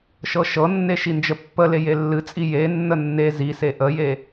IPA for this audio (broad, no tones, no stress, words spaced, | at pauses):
ʃɤʃɤnːe ʃind͡ʒəpːəle jelːɨt͡sʼi jenːə nːe zise ʔəje